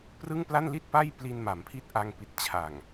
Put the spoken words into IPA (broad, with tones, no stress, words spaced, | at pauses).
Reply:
prɯ˥˩ŋpla˥˩n li˥˩t̚pa˥˩j pli˧nma˩˦mpʰi˦˥t̚ ʔa˧ŋpi˨˩t̚ t͡ɕʰa˨˩ŋ